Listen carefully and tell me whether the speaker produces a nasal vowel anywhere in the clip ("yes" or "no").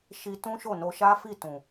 yes